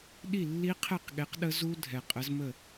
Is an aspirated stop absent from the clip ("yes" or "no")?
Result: no